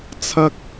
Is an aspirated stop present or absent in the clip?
present